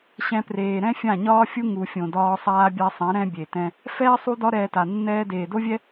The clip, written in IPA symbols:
ɕ ɛ̃˧ p r eː˨ ɾ ɛ̃˦ fʲ ã˦˨ ɲ ɒː˦ fʲ u˦ ŋ u˨ fʲ õ˨ d ɒː˧ sˤ aː˧ bʲ a˧ sˤ ɛ̃˨˦ ɾ ɛ̃˦ bʲ e˨ t ɛ̃˧ | f ɛː˦ sˤ u˦ d ɒ˦ ɾ ɛː˧ t a˨ nː ɛː˧ d eː˨ d o˦ vʲ ɛ˦

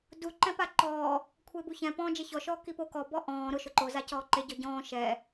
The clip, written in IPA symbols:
d u ǃ ɛ̃ p a ǃ ɔː | kʷʰ e b u ç ɛ̃ p ɔ̃ː d͡ʒ e ç ɔ ʃ ɔː k i p o k ɔ b ɔ ʔ ɔ̃ː ɾ ʊ ʃ ʊ ǃ o z a c ɔː ǃ e ɟ ɔ ɟ ɔ̃ː ʃ ɛ

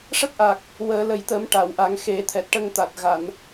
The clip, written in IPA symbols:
ʂ ə˦˥ k̚ ʔ aː˨˩ k̚ | w əː˨˩˦ l ə˨˩ j t̪ ə˨˩˦ m ʈ a˨˩˨ w ʔ a˨˩˦ ŋ x e˨˩˦ t̪ʰ ɛ˨˩ t̚ ʈ ə˧ ŋ t̪ a˨˩ t̚ ɣ a˨˩˨ n

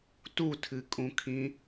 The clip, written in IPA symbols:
t u tʰ ɨ kʼ ũ kʰ ĩ

